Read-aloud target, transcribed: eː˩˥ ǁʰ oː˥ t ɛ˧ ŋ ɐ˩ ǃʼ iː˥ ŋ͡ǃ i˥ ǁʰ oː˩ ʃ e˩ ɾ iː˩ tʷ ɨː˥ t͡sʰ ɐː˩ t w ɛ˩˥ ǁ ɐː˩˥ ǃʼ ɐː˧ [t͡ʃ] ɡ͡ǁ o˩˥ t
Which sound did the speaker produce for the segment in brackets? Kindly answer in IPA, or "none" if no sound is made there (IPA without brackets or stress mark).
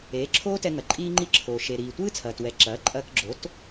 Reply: k